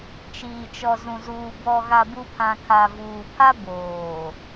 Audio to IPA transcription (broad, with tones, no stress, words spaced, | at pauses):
t͡ʃiː˨t͡ʃɔ˨zũ˨zuː˨ bɔ˨ɣa˨bu˨ pʰã˨kʰa˨vuː˨pʰa˦ boː˨